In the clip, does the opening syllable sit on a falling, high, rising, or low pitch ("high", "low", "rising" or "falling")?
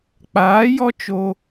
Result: rising